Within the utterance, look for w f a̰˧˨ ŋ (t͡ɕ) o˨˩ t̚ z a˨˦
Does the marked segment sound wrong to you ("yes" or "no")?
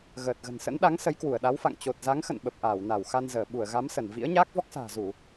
no